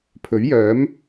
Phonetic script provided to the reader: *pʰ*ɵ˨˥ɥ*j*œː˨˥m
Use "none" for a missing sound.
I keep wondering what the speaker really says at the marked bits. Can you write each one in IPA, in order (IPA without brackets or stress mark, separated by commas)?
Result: pʰ, j